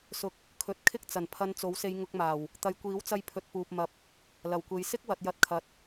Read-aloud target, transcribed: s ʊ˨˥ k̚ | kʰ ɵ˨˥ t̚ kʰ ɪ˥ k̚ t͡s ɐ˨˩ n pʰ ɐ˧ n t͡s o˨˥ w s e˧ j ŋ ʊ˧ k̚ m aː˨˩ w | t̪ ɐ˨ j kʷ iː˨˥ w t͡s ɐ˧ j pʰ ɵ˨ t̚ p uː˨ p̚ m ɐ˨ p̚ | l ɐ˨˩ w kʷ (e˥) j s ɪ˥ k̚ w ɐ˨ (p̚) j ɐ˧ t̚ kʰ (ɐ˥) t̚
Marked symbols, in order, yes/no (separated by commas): no, no, no